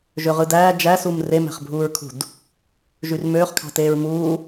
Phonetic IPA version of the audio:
ʒ ø ʁ ɯ d æː d͡ʒ æ s u m r e m æ̤ χ bʱ uː ɹ kʰ ṳ d | ʒ y r m øː χ kʰ ɑ̤ t eː ɹ m uː

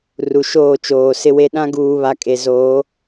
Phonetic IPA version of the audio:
r u˨ ʃ oː˦˨ t͡ʃ oː˨ s ɪ˦ w e˦ ɗ ã˦ ɡ uː˨ β a˨ kʼ e˨ z oː˨˦

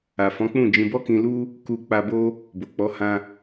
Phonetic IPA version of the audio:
a˨ f ɔ̃˨˦ k͡p ũ˦˨ d͡ʒ ĩ˧ b ɔ˦ k ĩ˧ l u˦ | k u˧ k͡p a˧ b o˦ | b o˨ k͡p ɔ˨˦ h ã˦

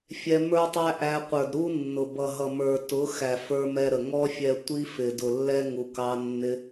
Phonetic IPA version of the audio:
fʲ ɛ˧ m ə˞˦ tˤ æ˦ ʔ æ˧ qʷ ə˞˨ d ɾ u˦ nː ʊ˨ b ʌ˨ ɦ ʌ˨ m ə˞˨ t ʊ˨˦ x æ˨ f ə˞˦ m ɛ˦ ɾ ə˨ ŋ ɔ˦ fʲ ɛ˧ tʷ i˦ f ɪ˨ d ʊ˨ lː ɛ˦ ŋ u˨ k ɑ˧ nː ɪ˧

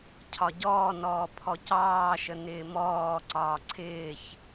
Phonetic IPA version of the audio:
cʰ ɒ ɟ ɔː n ɔː pʰ ɔ c ɑː ʃ ə n ɪː m ɔː ǀ ɒː ǀʰ ɪː ç

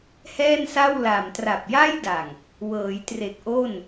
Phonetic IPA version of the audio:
h ɛː˥˩ n s a˥˩ w l a˨˩ m t r a˨˩ p̚ j a˥˩ j d a˨˩ ŋ | w ɤː˩˦ j t r e˨˩ k̚ ʔ o˥˩ n

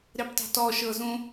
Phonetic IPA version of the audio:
ɾ e p tˤ ṳ t ɔ ʃ ɤ z ũ

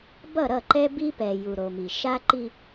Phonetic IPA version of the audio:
b ʌ˦˨ ɾ ʌ˦˨ ǃ ɛ˦ b i˦ p ɛ˨ j u˨ ɾ o˨ m i˨ ʃ a˦ ǃ i˦

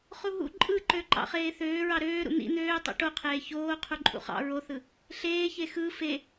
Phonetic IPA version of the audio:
χ u ɦ ṵ ǃʼ ɯ ǃ ø ǃ ɑ̰ χ eː θ øː ɹ ɑ ɾ øː ɾ ṵ n̪ ḭ n̪ øː tˤ ṵ ʈ o qʰ eː ç oː qʰ u ǃʼ ṵ χ ɑ̰ ɹ o θ ɯ | ɬ eː ç e x ɯ f e

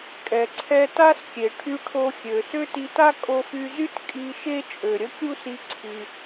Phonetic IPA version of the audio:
kʼ ɛ˩ ǀʰ ɛ˧ t a˥ s kʲ e˩ ʈʰ y˧ ʈʰ o˧ xʲ ø˩ s ø˥ t i˧ t a˥ kʼ o˧ f y˧ z y˥ t kʼ i˧ ʃ e˥ t͡ʃʼ ø˩ ɾʲ ə˥ kʲ u˥ s i˧ ǀʰ y˩

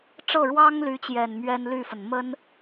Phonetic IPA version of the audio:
ʈ͡ʂ ɤ˥˩ ɻ w ɑ˥ ŋ l y˧˥ t͡ɕ j ɛ˨˩ n m ɥ ɛ˥ n l y˥˩ f ə˩ n m ə˥ n

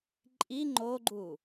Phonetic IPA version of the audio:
ǃʼ i ŋ͡ǃ o ɡ͡ǃ u

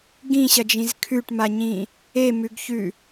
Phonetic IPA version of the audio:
ɡ ĩ ɕ ɐ d͡ʒ ĩ z kʰ ʉ ʈ m a ɲ ĩ | e m ʉ ɡ ç ʉ

